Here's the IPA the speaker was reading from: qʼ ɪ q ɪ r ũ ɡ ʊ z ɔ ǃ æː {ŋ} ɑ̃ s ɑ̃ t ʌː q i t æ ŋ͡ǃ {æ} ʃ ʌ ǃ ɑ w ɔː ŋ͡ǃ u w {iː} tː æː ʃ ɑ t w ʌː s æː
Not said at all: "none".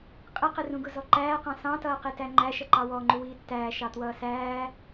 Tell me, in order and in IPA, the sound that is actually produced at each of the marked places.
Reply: q, æ, iː

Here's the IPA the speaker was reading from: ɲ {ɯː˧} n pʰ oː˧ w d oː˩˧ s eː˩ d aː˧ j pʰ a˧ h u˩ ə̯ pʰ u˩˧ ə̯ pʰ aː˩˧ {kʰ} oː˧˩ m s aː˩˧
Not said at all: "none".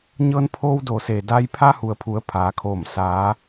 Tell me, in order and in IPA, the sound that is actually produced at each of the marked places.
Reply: ɤː˧, kʰ

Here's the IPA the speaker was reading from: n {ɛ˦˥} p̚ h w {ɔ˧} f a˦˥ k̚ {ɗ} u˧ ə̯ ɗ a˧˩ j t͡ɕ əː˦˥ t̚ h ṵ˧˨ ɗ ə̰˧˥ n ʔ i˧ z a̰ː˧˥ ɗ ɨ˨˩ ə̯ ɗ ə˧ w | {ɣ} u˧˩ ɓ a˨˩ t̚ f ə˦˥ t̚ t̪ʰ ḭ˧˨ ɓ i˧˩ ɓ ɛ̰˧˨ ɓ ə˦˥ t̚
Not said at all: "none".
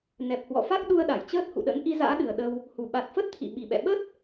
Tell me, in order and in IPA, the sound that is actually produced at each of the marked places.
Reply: ɛ˨˩, ɔ̰˧˨, ɗ, h

